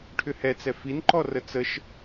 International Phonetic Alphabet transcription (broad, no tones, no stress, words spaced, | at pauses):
ʈʰʏhɛt͡sɛ finǃɔ rət͡səʃ